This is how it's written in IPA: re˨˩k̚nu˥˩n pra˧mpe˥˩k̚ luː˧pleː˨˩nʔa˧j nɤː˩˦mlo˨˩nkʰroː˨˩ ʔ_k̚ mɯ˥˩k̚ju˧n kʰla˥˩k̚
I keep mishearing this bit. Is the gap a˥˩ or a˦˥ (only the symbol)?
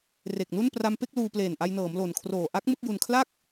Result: a˦˥